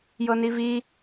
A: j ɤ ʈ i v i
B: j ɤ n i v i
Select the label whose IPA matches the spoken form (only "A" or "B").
B